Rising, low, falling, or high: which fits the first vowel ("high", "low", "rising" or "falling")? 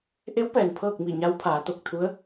rising